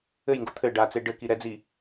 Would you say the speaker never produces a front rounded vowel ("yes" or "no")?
yes